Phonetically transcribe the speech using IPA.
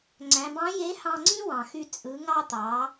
ŋ͡ǀ æ̃˩˧ b ɑ̃˧˥ j e˧˥ h ɑ̃˧ ŋ͡ǀ ĩ˥ w ɑ̃˩ x y˧ t͡sʼ ɯ˩˧ ŋ ɑ˧ t̪ ɑ˩˧

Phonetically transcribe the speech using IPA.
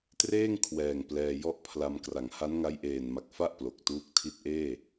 t r eː˥˩ ŋ kʰ w ɛː˨˩ ŋ p l ɛː˧ j ɔ˥˩ ʔ pʰ l a˧ m k r a˩˦ ŋ h a˦˥ n ŋ a˦˥ j ʔ eː˨˩ n m a˨˩ k̚ f a˥˩ ʔ p l o˨˩ k̚ t uː˦˥ k̚ tʰ i˥˩ t̚ ʔ eː˥˩

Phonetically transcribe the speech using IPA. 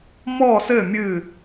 m ɔː˥˧ s ɘː˥˧ mʲ ɨː˥˧

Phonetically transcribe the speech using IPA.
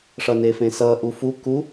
ʂ ʌ n e f ẽ s ʌ ʔ u f u k u

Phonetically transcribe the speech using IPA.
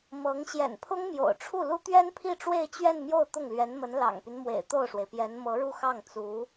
m ɤ˧˥ ŋ ɕ j ɛ̰˨˩ n pʰ ʊ˥ ŋ m j o̰˨˩ ʊ̯ ʈ͡ʂʰ u˥˩ l u˥ t̪ ɥ ɛ˥ n pʰ i˥˧ ʈ͡ʂ w e˥˧ ɪ̯ t͡ɕ ɥ ɛ˥˧ n m j o˥˧ ʊ̯ t̪ ʊ˥˩ ŋ l ɥ ɛ˧˥ n m ə˧˥ n l ɑ̰˨˩ ŋ p y˦ n m w ḛ˨˩ ɪ̯ t̪ o˥˩ ʊ̯ ʂ w e˩ ɪ̯ p j ɛ˧˥ n m ɤ˧˥ ɻ u˥˧ x ɑ˥˩ ŋ t͡s u˧˥

